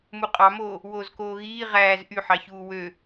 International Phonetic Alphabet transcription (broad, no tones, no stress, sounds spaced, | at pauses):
m u qʼ ɑ m oː | w oː z k oː ɣ iː ʁ æː z ʔ y ħ ɑ ç uː w ø